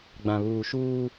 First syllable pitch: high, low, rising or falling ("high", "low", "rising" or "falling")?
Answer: low